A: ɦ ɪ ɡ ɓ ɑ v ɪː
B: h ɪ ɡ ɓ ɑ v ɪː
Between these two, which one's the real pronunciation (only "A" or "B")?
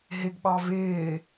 A